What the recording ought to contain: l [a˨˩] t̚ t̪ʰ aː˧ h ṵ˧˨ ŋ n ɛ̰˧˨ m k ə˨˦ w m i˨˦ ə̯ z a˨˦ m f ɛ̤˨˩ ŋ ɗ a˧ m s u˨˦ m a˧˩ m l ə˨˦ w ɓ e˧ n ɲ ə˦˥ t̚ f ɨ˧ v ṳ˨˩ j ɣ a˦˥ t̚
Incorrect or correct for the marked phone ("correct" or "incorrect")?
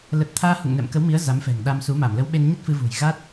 incorrect